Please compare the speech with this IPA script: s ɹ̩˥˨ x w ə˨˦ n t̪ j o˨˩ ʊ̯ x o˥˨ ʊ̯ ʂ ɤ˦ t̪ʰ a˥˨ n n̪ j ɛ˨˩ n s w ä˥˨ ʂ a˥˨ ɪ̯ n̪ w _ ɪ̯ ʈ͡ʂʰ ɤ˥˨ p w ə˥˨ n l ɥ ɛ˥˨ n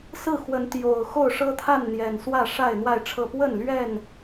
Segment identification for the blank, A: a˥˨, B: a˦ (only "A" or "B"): A